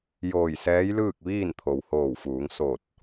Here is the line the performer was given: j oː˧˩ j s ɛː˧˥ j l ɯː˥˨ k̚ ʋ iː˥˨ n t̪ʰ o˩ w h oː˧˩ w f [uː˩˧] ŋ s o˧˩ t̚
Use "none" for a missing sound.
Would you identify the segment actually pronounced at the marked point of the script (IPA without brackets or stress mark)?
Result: uː˩˧